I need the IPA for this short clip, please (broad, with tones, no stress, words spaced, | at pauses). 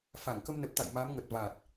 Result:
fa˧˩ŋkə˧mnə˨˩p̚t̪a̰˧˨j ma˨˦mŋə˨˩t̚ va˨˩t̚